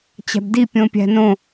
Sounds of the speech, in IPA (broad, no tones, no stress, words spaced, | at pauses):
t͡ɕæ̤bdi pʲõpʲæ̤nõ